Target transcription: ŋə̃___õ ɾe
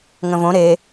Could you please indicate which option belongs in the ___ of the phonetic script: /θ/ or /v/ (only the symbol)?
v